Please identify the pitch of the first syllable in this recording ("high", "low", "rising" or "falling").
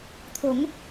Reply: rising